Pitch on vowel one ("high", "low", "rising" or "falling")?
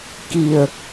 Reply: low